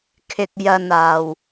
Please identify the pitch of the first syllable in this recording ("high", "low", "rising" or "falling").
low